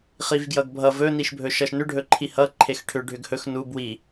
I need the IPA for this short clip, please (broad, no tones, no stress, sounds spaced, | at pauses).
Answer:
χ i v ɡ j ʌ ɡ bʱ ʌ v ɵ n i ʃ bʱ ɵ ʃ ʌ ʃ n ʏ ɖʱ ɵ ǃʰ i h ʌ ǃʰ e x ʈʰ ʏ ɖʱ ʏ ɡ h ɵ x n u b w i